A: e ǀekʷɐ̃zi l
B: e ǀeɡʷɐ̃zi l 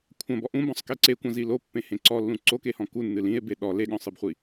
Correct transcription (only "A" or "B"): A